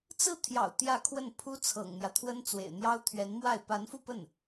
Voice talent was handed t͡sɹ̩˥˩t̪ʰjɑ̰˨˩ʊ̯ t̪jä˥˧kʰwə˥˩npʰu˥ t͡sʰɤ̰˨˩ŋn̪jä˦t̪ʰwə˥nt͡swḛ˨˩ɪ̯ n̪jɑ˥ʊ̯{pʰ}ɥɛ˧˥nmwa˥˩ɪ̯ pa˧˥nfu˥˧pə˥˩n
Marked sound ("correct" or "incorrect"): incorrect